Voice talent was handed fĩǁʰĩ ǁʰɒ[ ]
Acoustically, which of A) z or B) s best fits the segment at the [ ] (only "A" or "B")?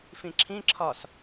B